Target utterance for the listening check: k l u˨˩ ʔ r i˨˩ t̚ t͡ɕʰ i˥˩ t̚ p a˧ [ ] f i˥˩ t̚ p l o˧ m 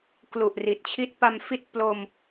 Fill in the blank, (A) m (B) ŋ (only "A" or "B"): A